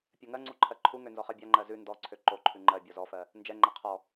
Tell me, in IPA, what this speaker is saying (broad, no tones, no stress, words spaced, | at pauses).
pʲɜŋɜŋ͡ǀu ǃʰɜǃʰuŋø nzɔχɜbʲaŋ͡ǃɜ zʉ ndɔǀʰø ǃoǃʰʉ ŋ͡ǃɜ bʲɔzɔfɜ | nd͡ʒɛŋ͡ǃɛ qʰɔ